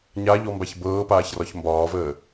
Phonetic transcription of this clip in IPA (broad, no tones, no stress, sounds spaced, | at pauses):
ɲ a ʎ ɔ m b a ç b ɤː p aː ç r ɒ ç m b ɒː v əː